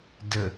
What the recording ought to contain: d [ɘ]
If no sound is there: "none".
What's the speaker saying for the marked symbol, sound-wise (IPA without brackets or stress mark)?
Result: ɘ